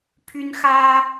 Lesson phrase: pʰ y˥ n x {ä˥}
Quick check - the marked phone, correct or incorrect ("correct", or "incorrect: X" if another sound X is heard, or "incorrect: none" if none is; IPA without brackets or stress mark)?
correct